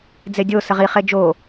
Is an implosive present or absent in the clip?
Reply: absent